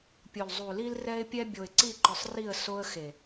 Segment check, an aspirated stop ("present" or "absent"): absent